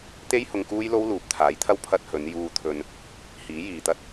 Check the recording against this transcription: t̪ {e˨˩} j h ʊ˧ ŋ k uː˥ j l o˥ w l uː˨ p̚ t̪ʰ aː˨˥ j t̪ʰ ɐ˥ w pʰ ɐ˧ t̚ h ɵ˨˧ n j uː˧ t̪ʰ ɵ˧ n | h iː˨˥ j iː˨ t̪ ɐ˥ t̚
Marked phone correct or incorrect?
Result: incorrect